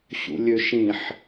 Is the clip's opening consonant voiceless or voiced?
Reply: voiceless